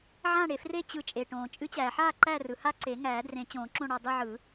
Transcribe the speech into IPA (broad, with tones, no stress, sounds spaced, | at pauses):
ʕ ã˦˨ ɽ e˩ f r e˦˨ t͡ɕ ɯ˨˩˦ t͡ʃʼ e˩ ʈ õː˩ t͡ʃʼ ɨ˨˩˦ t͡ɕ æː˩ ħ aː˦˨ ǃ æ˦˨ r ɯ˩ h a˦˨ ǀ e˨˩˦ ŋ æː˨˩˦ d r ẽ˨˩˦ t͡ɕ õː˨˩˦ ǁ õ˦˨ ɽ ɔ˦˨ dˤ ɯ˦˨ ʕ ɯ˨˩˦